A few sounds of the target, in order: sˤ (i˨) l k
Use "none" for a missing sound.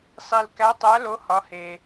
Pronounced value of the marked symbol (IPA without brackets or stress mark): i˨